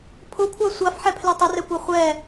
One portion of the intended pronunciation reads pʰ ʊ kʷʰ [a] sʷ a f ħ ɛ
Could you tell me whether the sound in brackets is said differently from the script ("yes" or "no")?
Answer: no